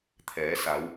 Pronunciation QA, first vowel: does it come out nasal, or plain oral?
oral